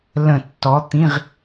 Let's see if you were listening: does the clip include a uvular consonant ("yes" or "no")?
yes